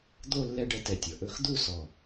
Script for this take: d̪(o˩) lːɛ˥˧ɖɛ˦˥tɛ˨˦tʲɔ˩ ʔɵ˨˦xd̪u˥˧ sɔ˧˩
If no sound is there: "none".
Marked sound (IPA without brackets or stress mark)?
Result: o˥˧